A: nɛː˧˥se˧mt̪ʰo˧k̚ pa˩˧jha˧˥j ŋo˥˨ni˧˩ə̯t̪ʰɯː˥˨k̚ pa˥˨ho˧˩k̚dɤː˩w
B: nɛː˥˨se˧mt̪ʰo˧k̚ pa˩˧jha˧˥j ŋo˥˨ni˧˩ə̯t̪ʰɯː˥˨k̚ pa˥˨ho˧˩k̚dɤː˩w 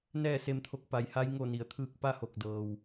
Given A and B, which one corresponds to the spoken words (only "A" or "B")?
B